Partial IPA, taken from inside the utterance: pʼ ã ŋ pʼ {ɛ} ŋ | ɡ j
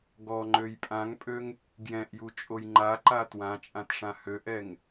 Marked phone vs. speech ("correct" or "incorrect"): incorrect